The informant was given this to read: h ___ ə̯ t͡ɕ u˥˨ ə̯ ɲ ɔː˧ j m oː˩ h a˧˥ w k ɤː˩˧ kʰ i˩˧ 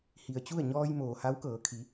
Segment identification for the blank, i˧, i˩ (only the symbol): i˩